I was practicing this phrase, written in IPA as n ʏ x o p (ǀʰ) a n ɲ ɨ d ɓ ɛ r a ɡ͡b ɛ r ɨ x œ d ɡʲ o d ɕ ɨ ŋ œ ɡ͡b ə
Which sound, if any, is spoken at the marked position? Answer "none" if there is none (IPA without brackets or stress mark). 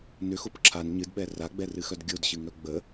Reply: ǁʰ